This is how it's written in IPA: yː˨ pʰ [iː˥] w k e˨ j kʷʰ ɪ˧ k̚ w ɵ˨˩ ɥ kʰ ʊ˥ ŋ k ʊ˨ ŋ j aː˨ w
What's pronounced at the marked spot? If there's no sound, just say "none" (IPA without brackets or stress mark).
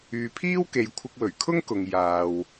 iː˥